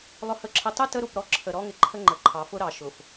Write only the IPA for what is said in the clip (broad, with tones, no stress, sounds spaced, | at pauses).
lˠ ʊ˨ h ə˨ ǁʰ ə˨ tˤ ʊ˦ t ə˦ ɾ u˨ p ɾ ɔ˦ ǁʰ ə˨ ɾ ɔ˦ ŋ ɪ˨ ǃʰ ə˦ ŋ͡ǃ ə˨ ǃʰ ɑ˨˦ f ʊ˦ ɾ ɑ˨ ʃ ʊ˨ f